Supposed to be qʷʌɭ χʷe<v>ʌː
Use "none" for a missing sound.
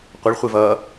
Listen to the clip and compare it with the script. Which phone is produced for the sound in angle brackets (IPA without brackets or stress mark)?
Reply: v